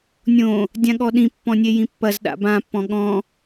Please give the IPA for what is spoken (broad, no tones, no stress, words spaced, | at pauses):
nʲõ | dʲãɠɔɗĩ pːɔ̃nʲejĩpːɐz ɗa̰bã pːɔ̃ɠɔ̃